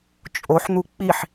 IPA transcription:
t͡ʃʼ o ħ n̪ u k͡p i ħ

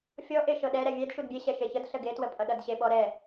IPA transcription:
fʲ ɔ ʔ e ʃ ɤ ɗ ɛ ɾ ɛ vʲ ɛ d ʃ u d bʲ e ɕ ɛ ʃ e ç ə d ɬ ə ɡ e t w ə pʼ ʌ ɗ ʌ d ɕ e ɓ ɔ ɾ ɛ

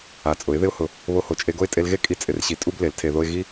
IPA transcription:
a˨ t͡sʼ ʊ˨˦ ɪ̯ ð ɪ˦ ʊ̯ h ʊ˧ | β o˧ h o˨ t͡ʃʼ e˧ ɡ o˦ ɪ̯ tʼ e˧ l ɣ e˦ kʼ i˧ t͡sʼ ɪ˧ r ɕ i˧ tʼ u˦ b l e˨˦ l tʰ e˧ ð o˦ ɪ̯ ɣ i˦

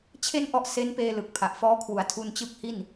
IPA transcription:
t͡ɕʰ e˥˩ n ʔ ɔ˦˥ ʔ s e˦˥ n p eː˧ l ɯ˨˩ k̚ pʰ a˨˩ ʔ f ɔː˦˥ kʰ w u˩˦ a̯ tʰ u˧ n t͡ɕ ɯ˦˥ k̚ h i˥˩ n

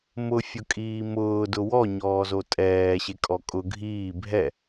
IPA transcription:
m ʊ fʲ ʊ kʼ iː m ʊː d ʊ w ɔ ɲ ɔː z o tʼ ɛː ɕ e kʼ ɔ kʼ ʊ ɡʱ iː bʱ ɛ

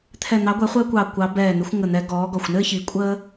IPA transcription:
t̪ʰ ɛ˧˩ n̪ ɑ˨˥ ɡʷ ɛ˨˥ χʷ əː˦ kʷ ɑ˧˩ kʷ ɑ˨˥ b ɛː˧˩ n̪ ɪ˨˥ xʷ ŋ ə˧˩ n̪ ɛ˨˥ ɡ ɔː˨˥ ɡ ɔ˧˩ xʷ n ɘː˦ ç i˨˥ kʷʼ əː˦

